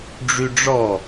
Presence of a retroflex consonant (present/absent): present